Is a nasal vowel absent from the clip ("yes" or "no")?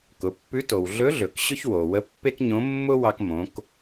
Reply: no